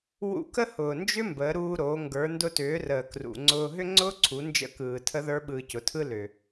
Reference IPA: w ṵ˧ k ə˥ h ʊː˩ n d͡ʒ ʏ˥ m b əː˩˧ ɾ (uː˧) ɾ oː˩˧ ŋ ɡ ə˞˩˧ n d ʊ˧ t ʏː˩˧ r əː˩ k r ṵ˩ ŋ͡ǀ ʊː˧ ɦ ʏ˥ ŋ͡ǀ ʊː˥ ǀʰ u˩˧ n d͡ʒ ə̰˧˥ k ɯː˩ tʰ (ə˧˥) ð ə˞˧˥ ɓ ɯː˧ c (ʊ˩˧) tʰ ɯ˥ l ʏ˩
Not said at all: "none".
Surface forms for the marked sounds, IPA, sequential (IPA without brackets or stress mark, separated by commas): uː˧, ə˧˥, ʊ˩˧